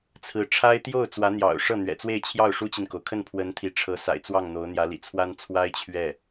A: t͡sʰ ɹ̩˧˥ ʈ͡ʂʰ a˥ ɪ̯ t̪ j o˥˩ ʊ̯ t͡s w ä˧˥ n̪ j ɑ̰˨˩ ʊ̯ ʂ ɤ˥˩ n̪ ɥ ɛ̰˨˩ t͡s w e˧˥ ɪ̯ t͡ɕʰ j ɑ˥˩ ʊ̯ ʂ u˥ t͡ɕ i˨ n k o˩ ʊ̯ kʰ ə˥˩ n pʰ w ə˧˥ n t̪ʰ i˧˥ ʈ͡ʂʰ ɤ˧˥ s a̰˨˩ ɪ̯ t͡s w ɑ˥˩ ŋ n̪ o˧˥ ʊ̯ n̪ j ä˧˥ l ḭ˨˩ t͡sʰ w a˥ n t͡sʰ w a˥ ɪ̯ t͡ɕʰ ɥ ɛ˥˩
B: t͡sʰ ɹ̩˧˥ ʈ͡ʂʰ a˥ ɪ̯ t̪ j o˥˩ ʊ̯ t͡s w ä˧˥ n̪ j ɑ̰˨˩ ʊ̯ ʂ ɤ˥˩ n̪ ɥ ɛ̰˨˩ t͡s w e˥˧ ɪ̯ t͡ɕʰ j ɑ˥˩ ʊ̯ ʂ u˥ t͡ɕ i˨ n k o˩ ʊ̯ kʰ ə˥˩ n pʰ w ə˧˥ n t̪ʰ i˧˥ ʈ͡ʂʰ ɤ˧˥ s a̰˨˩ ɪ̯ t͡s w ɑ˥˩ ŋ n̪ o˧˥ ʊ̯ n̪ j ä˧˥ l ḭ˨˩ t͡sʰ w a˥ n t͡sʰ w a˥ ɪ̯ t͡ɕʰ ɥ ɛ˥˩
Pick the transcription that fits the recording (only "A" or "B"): B